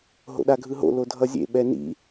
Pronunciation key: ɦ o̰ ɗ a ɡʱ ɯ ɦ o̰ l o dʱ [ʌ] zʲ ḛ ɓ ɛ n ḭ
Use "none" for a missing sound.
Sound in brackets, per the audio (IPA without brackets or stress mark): ʌ